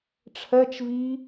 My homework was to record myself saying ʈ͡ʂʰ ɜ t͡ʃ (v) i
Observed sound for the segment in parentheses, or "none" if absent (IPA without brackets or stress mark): v